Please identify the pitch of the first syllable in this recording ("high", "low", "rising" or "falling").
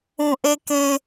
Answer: low